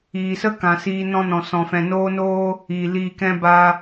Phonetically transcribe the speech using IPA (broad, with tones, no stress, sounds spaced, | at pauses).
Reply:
iː˨ s ə˦ k ã˨ s iː˧ n ɔ̃˦ n ɔ̃˨ s ɔ̃˨ f ɛ̃˨ n oː˦ n oː˦ | iː˨ l iː˧ k ɛ̃˦ b a˦